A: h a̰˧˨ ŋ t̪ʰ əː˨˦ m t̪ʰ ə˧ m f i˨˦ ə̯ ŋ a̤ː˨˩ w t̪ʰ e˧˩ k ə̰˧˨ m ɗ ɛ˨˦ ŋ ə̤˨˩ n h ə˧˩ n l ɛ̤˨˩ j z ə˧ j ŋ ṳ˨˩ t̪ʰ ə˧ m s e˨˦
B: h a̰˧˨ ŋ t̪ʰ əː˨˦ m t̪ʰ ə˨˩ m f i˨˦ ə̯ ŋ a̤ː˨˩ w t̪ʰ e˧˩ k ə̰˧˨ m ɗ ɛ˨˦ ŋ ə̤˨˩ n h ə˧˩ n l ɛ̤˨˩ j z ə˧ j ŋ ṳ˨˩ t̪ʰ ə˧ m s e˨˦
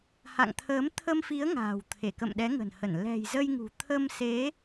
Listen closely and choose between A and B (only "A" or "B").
A